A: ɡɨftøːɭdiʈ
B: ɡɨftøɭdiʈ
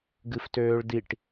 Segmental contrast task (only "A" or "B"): A